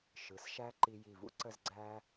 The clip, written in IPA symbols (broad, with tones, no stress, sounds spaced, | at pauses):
ʃ ɯ˩˧ s ʃ æ˥ ǃ i˧ j i˧˩ v ṵ˥ ǀ ə˥˧ z ɡ͡ǀ æ˥